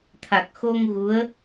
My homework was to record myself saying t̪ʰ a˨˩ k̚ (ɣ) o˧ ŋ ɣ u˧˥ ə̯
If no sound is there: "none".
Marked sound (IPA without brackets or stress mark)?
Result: x